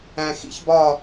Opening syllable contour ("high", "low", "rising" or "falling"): low